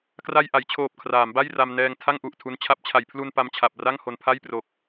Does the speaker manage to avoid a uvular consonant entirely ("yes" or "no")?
yes